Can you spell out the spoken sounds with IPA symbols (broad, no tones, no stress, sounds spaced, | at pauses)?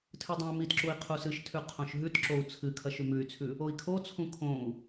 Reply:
tʰ ɨ dˤ õ y̯ m i t ǁ u i̯ qʰ u s ɨ ʃ tʰ ʉ qʰ õ ʃ ɦ ʉ t ǁ o u̯ t͡sʰ ɨ kʰ ɐ ʃ ʉ m ʉ y̯ t͡sʰ ʉ | o i̯ kʰ o t͡sʰ ũ kʰ õ u̯